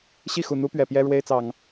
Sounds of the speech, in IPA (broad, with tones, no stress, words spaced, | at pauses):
ɕi˥˨xu˨˩n̪u˦pɥɛ˨˩ pjɛ˦ɻwe˦ɪ̯t͡sɑ˨˩ŋ